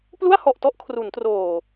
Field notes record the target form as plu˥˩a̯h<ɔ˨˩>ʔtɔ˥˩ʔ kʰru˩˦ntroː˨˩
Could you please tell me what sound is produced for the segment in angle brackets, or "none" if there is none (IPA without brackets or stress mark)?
ɔ˨˩